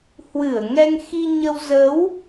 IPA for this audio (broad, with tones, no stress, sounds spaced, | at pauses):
h w ɨ˧˩ ə̯ ŋ ɛ˧ ŋ x i˧ ɲ ə˧ w z ə˨˦ w